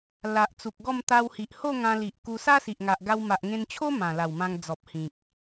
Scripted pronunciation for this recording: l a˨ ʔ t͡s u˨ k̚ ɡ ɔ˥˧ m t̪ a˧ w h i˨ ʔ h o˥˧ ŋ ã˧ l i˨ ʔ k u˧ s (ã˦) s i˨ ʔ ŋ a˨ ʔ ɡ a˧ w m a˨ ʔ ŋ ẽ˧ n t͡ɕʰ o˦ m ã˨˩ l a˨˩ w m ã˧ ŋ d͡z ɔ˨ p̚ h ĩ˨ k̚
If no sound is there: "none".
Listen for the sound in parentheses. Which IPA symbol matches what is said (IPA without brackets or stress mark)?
a˦